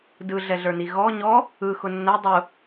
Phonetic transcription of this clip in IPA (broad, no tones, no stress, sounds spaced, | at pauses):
d ɯ ɮ ɛ ɮ ə˞ n i ɣ ɔ ɲ ɔ | ɯ x ʊ nː ɛ dˤ ʊ